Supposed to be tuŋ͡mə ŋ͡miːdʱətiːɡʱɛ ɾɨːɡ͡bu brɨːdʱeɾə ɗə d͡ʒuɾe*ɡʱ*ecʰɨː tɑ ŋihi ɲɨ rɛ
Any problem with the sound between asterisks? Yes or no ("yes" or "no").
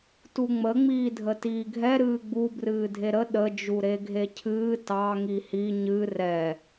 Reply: no